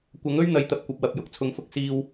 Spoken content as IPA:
kʷ ɐ˨˥ ŋ ɵ˥ ɥ n̪ ɐ˨˧ j t̪ ɐ˨ p̚ kʷ ɐ˨ p̚ w ɐ˨ p̚ j ʊ˨ k̚ t͡sʰ ʊ˨˧ ŋ f ʊ˧ k̚ s iː˧ w

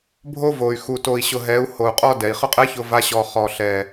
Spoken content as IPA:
bʱ o˦ v o˨ y̯ x u˨ t o˨ i̯ ɕ ʊ˨ ɦ ɛ˨˦ u̯ h o˨ u̯ qʼ ɔ˦ d ɛ˨ i̯ χ ʊ˦ qʼ ɛ˦ ç ʊ˦ v a˦ ɕ ɔ˨ χ ɔ˨ ɬ ɛ˨

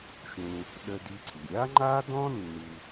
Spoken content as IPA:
ʃ ũ˧ | ɗ ə˧ d i˧ ǀ i˩ ɾʲ a˥ ŋ͡ǃ a˥ d ɔ̃˥ nː u˧

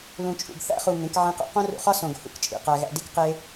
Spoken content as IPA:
l ũ˨ t͡ʃʼ ṵ˨ ɡ θ æ̰˦ χ u˨ ŋ ẽ˨˦ k ʕ ĩ˦ q o̰˦ q õ˦ r ṵ˧ χ ɒ˦ s õ˨ ɡ h ṵ˧ k t͡ʃʼ ḭ˨ q æ˧ ɣ æ̰˧ d i˦ k q e˦

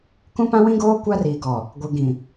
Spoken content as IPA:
k ũ˦ p ã˦ w ĩ˦ ɡ oː˦ kʷ a˦ r iː˨ ɡ ɔ˨ | ɡʷ ɪ˨ ɡ ĩ˨

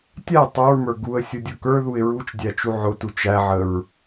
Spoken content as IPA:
tʲ æ tˤ u ɹ m ə˞ ɡ u ə̯ sʲ ʊ dʲ ʊ k ə˞ ð u ɪ̯ ɹ u t͡ʃ dʲ æ t͡ʃ u ʕ ʊ t u t͡ʃ æ ʕ ə ɹ

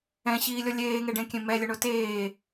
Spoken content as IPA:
ɛ̃ ɕ iː lʲ ɔ lʲ eː ŋ e ɖ ẽ kʲ ẽ m ɛ lʲ ʊ ɳ o t eː

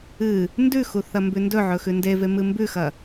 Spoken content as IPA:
ɨ | n d ʉ x u θ ɐ m b ʉ n d ɵ ʕ ɵ x ʉ n d e v e m ɨ m b ʉ x ɐ

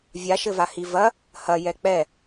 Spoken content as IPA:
vʲ a ʃ ɘ v a h i v ɐ | h ɐ j ɛ k͡p ɛ

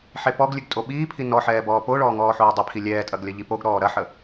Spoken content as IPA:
ħ e p ɔ ɡ lʲ ʉ ɡ tʼ o ɓ iː pʰ i n ɔ ħ ɛː b ɔː p o ɭ ɔː ŋ ɔː ħ oː dˤ ə pʰ i lʲ ɛː tʼ ɐ ɡ lʲ ɐ ʎ i p o ɡ ɾ ɔː ɾ ɐ ħ ə

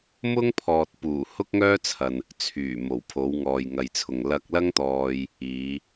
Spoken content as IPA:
m ʊ˥ ŋ pʰ ɔː˨ t̚ p uː˨˩ h ʊ˥ k̚ ŋ œː˥ t͡sʰ ɐ˨ n | t͡sʰ yː˨˩ m o˨˩ w pʰ o˨˧ w ŋ ɔː˨ j ŋ ɐ˨ j t͡sʰ ʊ˨ ŋ l ɐ˧ k̚ l ɐ˥ ŋ t̪ ɔː˧ j | iː˨˧

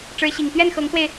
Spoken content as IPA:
ʈ͡ʂ ɻ̩˧˥ ɕ i˨˩ ŋ t̪ ɥ ɛ˥˩ n x ɤ˧˥ ŋ s w e˧ ɪ̯

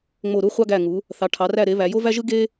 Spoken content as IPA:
ŋ͡m o˦˨ ɾ u˥ χʷ ɑ˥ ɡ æ˦˨ ŋ u˨˦ | θ ɑ˨˦ ʈʰ ɑ˨˦ r æ˦˨ ɾ e˨˦ β æ˨˦ j o˥ v æ˥ ʒ ɯ˥ ɡ e˥

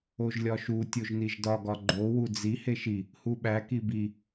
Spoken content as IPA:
o ʒ lʲ ɒ ʃ u tʲ o ʒ n i ʒ d ɒ ɡ ɒ ɡ͡ǃ o w u d͡z i h e ʃ i | h u ɓ æ k i b i

